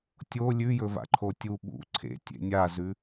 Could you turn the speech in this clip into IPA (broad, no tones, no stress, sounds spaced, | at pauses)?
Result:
tʲ o lʲ ʉ j ɵ v a̰ ǃʰ o tʲ u ɓ ṵ ǀʰ ḛ tʲ ḛ nʲ a z ʉ